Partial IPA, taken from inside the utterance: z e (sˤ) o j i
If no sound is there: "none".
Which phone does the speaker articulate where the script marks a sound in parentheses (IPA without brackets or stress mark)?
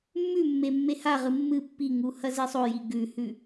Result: sˤ